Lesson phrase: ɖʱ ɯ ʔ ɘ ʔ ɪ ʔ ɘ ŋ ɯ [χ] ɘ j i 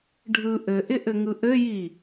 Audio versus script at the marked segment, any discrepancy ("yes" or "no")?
yes